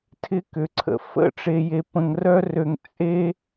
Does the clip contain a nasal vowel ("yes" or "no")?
yes